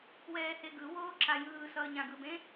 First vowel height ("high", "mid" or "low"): mid